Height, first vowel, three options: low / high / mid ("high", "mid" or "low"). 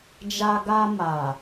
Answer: low